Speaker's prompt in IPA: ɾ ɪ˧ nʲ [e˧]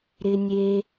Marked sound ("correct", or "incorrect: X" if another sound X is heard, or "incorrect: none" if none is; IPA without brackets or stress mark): correct